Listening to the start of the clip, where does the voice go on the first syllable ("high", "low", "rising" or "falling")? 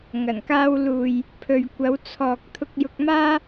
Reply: low